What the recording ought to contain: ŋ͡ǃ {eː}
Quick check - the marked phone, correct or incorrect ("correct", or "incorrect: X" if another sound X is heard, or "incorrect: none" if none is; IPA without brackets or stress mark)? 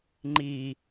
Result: incorrect: iː